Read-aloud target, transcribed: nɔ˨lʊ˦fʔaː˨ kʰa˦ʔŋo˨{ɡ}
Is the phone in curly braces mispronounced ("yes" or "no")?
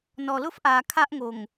yes